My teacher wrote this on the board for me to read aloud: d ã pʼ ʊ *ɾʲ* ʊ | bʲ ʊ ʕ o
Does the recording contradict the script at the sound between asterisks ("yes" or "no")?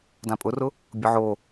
yes